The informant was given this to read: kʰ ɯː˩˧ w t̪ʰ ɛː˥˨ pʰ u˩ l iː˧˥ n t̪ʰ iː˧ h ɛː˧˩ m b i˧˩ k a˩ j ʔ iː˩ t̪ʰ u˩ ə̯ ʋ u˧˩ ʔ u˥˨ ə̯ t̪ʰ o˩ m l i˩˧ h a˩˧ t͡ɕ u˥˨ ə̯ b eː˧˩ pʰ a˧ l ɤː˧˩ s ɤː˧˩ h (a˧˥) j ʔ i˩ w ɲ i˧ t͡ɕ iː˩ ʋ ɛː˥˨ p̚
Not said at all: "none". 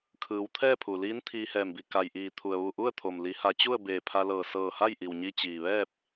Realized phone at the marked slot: a˥˨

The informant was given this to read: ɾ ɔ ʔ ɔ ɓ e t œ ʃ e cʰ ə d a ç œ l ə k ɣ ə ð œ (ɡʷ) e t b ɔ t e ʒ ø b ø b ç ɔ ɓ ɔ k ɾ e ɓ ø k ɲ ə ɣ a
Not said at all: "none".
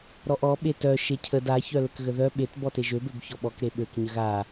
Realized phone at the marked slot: ɓ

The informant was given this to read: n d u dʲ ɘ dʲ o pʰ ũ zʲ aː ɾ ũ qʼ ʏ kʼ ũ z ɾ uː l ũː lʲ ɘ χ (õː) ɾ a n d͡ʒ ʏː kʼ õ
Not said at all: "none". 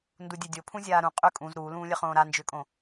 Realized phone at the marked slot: õː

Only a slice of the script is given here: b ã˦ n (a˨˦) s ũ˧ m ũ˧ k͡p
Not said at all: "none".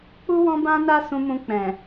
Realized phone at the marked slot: a˦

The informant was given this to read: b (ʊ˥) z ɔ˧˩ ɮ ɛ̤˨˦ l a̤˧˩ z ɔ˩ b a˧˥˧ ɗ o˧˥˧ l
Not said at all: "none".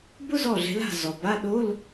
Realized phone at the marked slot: ʊ˥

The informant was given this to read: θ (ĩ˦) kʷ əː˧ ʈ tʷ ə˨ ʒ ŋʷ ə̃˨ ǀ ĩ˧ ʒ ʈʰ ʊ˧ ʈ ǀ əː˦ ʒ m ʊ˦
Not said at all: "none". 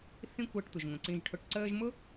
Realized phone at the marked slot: ĩ˦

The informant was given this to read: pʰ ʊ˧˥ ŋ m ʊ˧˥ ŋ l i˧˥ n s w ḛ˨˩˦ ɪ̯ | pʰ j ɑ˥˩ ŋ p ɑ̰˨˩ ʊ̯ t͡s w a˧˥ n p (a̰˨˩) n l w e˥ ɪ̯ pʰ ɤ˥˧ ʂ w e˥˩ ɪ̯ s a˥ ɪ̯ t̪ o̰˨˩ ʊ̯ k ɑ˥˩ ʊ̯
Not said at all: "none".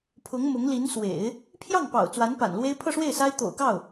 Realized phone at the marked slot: a̰˨˩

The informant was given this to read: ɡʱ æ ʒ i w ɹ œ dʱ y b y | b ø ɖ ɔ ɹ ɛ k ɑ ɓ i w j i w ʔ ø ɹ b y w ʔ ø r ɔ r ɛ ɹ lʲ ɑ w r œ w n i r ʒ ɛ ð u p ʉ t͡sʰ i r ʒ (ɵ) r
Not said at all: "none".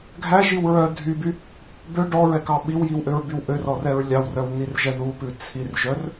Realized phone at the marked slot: œ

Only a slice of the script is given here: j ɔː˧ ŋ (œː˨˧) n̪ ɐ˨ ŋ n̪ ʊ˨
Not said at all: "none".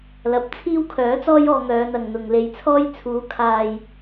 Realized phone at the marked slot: œː˨˧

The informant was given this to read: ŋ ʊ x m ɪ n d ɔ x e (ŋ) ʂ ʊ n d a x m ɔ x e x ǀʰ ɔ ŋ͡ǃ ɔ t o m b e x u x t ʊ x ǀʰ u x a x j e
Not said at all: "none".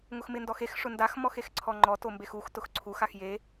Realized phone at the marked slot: x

